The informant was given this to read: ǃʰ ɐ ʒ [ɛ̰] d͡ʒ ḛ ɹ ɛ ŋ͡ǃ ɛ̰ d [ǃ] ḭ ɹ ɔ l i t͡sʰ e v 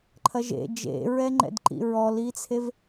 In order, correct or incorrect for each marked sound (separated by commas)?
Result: incorrect, correct